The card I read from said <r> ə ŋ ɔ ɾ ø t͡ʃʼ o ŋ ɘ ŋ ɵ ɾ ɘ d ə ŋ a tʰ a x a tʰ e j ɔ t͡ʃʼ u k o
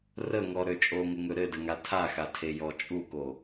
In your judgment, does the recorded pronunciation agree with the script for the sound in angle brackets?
yes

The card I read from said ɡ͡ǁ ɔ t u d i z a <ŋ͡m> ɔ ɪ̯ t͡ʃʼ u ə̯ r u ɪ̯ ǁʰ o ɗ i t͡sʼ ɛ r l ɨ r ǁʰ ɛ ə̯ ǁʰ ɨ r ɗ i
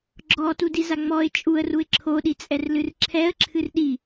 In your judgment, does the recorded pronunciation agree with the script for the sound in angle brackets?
yes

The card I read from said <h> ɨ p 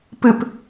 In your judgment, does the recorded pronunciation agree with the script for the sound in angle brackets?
no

